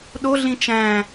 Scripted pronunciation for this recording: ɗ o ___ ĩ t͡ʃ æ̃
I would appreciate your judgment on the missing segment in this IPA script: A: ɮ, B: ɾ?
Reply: A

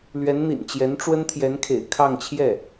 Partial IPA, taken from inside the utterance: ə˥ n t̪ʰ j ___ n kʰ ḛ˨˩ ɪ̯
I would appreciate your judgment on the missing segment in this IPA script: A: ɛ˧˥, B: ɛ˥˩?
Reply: A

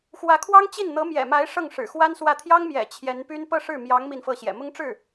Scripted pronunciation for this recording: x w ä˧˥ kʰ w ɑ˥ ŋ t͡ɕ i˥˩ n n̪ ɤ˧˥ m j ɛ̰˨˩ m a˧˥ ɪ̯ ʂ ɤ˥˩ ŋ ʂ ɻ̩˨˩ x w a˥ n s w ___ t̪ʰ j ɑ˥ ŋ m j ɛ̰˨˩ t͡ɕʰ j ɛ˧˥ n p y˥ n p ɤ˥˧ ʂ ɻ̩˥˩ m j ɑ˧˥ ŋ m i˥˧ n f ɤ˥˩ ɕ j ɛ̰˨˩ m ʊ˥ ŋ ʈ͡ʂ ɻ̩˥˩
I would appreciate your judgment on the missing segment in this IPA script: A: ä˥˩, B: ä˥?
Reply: A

